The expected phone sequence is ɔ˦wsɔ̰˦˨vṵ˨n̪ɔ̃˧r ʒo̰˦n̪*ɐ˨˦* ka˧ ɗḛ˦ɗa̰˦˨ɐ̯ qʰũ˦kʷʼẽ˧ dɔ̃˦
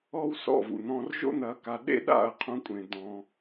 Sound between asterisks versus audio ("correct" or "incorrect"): correct